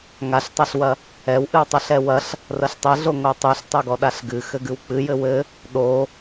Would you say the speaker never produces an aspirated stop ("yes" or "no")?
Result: yes